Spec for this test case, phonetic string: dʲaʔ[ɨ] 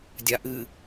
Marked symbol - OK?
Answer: yes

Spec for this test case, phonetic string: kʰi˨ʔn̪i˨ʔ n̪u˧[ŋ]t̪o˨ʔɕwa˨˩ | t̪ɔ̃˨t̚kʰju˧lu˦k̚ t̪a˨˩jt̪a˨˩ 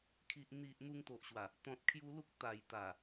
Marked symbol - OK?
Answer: yes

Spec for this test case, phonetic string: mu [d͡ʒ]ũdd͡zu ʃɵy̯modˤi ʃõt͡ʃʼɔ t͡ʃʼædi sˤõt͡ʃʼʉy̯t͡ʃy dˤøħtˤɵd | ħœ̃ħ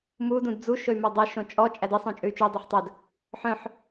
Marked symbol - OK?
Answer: no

